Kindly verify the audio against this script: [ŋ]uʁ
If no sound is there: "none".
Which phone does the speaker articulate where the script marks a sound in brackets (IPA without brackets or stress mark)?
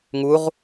ŋ